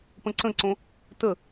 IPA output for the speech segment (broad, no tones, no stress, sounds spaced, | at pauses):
p ə̃ ǀ ə̃ ǀ õ | t ə